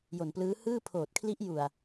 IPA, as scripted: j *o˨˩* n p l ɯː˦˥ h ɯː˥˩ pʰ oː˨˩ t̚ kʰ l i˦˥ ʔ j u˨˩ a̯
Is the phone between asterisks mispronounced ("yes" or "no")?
no